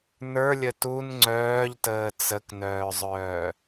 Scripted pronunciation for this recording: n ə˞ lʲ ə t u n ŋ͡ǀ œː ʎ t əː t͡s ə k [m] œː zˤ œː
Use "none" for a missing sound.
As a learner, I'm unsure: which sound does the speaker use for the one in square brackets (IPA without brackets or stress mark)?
n